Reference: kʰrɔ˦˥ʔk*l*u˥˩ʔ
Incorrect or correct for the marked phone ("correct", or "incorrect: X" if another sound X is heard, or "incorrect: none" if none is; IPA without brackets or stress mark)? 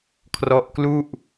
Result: correct